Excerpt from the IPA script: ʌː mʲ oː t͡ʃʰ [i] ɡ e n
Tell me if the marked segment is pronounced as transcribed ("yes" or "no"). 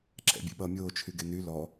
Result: no